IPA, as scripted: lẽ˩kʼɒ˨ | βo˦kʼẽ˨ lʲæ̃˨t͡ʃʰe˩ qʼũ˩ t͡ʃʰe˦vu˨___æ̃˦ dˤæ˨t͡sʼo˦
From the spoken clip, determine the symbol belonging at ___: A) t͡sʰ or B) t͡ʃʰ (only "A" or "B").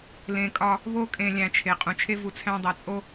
A